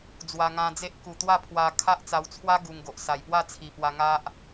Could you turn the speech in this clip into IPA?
d͡zwa˧ŋã˧d͡ze˦ʔ ku˨˩t̪wa˥˧pʰwa˧ kʰa˦ʔt͡sa˧wt͡sʰwa˦ ɡu˧ŋɡo˨ʔ sa˨˩jpwa˥˧t͡sʰi˨˩pwa˧ ŋa˦ʔ

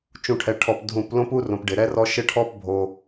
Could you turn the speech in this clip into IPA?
t͡ʃũ˨ʈʰɛ˨ʈʰɔ˨p dʱũ˨p lõ˦pu˦rõ˨p ɖɪ˨ɾɛ˦rɔ˦ ʃɪ˦ʈʰɔ˦p bʱo˦

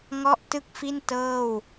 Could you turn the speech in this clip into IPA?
ŋɔ˥˩ʔtɯ˥˩k̚fi˥˩n tɤː˥˩w

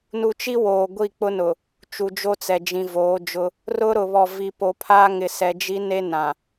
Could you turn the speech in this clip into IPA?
nu˨t͡ʃi˦ woː˨ɡʷi˦˨ k͡pʊ˦nʊ˨ | t͡ʃu˨d͡ʒo˦t͡sɛ˨d͡ʒĩ˨ voː˨˦d͡ʒʊ˦ | rʊ˦ɾʊ˨βɔ˨ vi˨po˨pʰa˦ŋɪ˨ sɛ˨d͡ʒi˦ne˦ nã˨

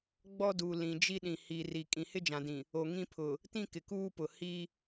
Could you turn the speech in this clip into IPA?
ɡ͡bɔ˦duː˨ lĩ˨d͡ʒi˦ɗĩ˨ hi˨ ri˨ kʼĩ˨hɪ˦d͡ʒã˨dĩ˨ | o˨ŋĩ˦ pʰʊ˨ | tĩ˦kɪ˨kuː˦pʊ˨ hi˦

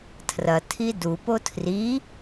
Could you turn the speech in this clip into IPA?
tʰrɐ tʰidup otʰri

